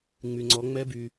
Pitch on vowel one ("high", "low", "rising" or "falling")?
low